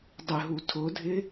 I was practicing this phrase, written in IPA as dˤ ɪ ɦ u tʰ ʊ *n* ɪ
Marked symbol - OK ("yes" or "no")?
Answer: no